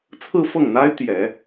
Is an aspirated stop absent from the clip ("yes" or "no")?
no